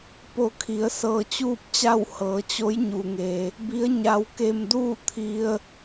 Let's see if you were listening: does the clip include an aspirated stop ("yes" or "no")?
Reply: yes